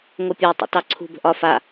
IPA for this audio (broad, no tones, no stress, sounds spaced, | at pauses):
ŋ o pʲ ə˞ tˤ ḭ t ɑ ǀʰ ṳ b ə̤ ʔ ɒ f a